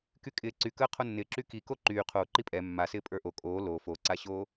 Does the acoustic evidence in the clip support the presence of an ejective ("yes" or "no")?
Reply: yes